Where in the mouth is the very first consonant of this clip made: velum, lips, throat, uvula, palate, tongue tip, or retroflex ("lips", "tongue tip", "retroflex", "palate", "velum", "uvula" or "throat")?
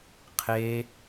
uvula